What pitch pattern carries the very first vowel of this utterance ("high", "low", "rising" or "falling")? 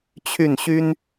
falling